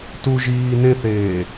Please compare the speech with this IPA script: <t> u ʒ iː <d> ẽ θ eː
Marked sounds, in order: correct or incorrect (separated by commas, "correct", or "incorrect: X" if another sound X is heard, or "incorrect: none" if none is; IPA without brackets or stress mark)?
correct, incorrect: n